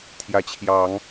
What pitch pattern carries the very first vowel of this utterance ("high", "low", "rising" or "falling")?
rising